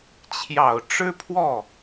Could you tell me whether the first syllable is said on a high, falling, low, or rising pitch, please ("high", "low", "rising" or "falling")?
low